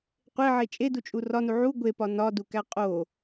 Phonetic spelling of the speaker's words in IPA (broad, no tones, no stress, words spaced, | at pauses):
qʷeʕe t͡ʃʼedut͡ʃʼu rɒnu ʕu ɡʷepɒ nɒdukæ qʼo